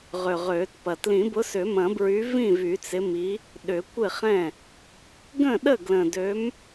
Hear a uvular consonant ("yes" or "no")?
yes